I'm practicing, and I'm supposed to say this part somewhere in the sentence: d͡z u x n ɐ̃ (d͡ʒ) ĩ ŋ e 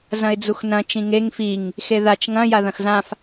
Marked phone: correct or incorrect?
incorrect